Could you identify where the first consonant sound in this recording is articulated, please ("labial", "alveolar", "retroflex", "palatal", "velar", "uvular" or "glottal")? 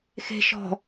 velar